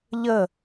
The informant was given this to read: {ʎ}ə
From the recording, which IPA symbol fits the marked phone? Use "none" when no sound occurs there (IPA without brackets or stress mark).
ʎ